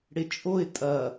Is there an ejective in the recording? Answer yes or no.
yes